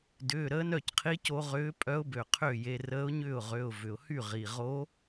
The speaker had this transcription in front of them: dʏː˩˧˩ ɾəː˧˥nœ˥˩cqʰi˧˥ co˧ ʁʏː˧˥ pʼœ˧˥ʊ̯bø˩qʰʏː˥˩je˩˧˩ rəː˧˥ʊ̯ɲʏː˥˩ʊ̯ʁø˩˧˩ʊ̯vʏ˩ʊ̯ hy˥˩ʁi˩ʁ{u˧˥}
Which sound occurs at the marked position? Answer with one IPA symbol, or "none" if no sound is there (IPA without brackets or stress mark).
o˧˥